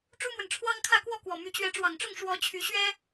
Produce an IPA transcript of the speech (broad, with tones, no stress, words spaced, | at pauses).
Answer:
ʈ͡ʂu˦mwə˨nʈ͡ʂʰwɑ˦ŋkʰä˥˨ kwɔ˥˨kwɔ˨˩ my˨˦t͡ɕɥɛ˨˦ʈ͡ʂwɑ˨˩ŋʈ͡ʂʊ˥˨ŋ ʂwɔ˨˦t͡ɕʰy˨˦ɕɥɛ˦